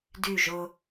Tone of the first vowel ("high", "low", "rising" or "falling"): falling